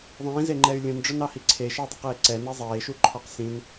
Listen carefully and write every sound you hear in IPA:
ðˤ ĩː z e ŋ͡ǃ ɛ y̯ lʲ ũ n ɖ͡ʐ œ n ɑ h i ǀʰ e ʃ ɑ dˤ i q eː ǀ ɛ n ɛ zˤ eː ʃ u ǃʰ ɔ q s ĩ n

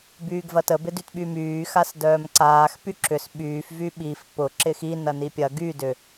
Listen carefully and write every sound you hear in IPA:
b yː ɡ v ɐ t ə b ɪ d y t ɓ y m yː x a s d œː m ǀ aː x p y ǁ ʏ s ɓ yː f v y ɓ i f p ʊ ǁ ɪ x i n ɐ n i pʲ ɐ ɡ y d ʏ

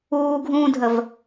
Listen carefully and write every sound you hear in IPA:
uː ɡʱ ũː dʱ ə v

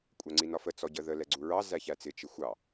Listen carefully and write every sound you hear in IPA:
kʷʼ æ ŋ͡ǀ i n ɒ f ə t͡s ɔ ɟ ə ð ə l ɛ ɡ͡ǀ u ɹ ɑ z æ ç æ t͡s ɪ t͡ʃ ɪ xʷ ɑ

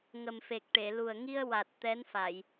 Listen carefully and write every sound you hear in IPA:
ŋ ə˨˩ m f e˨˩ k̚ ʈ e˨˩˨ l u˨˩ ə̯ ŋ i˧ ə̯ w a˨˩ t̚ t̪ ɛ˧˥ n f a˨˩˨ j

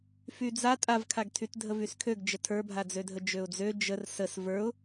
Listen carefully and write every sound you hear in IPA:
f y d͡z a tʼ a v kʰ a ɡ tʰ y t dʱ ə v y s kʰ ø ɡ d͡ʒ ə tʰ ə˞ bʱ a d͡z ø dʱ ə d͡ʒ ø ʊ̯ d͡z ø d͡ʒ ə r s ə s v ə˞ ʊ̯

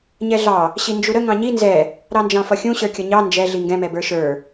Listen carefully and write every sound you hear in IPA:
ɲ ɛ ɮ ɑ | ɕ i n d͡ʒ u ɾ ə ŋ ɑ̃ ɲ i n z ɛ | ɾ ɑ n d͡ʒ ɑ̃ f ʌ xʲ ũ ɕ ə˞ kʲ ʌ ɲ ɑ n d͡ʒ ɛ ɮ i ŋ ɡ ɛ̃ m ɛ b ə˞ ʃ ə˞

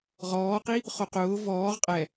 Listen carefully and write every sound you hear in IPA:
ʁ ɔː q i | χ o q ʊː v ɔː ʁ qʼ ɛ

